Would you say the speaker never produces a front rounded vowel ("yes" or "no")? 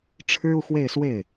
yes